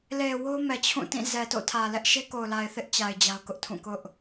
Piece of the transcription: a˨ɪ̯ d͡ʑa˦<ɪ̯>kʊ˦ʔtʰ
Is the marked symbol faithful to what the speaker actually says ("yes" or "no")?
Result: no